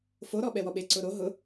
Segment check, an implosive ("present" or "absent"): present